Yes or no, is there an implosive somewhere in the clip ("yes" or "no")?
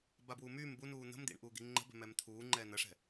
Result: no